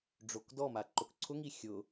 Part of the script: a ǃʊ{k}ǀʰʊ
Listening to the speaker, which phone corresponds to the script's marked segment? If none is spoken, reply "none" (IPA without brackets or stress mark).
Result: k